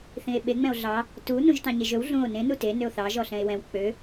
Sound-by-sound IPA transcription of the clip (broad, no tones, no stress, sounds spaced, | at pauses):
θ ĩ e̯ ɓ e ŋ͡m ɛ̃ o̯ ɮ ɑ | t u n ũ ʒ t ɑ̃ ɲ e ʒ ɵ w ɮ ũ o̯ n ẽ n u t e n ø o̯ θ ɑ ʒ ɔ ɬ ɛ̃ e̯ w ɛ̃ w k͡p ø